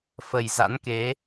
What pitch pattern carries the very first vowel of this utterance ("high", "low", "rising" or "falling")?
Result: low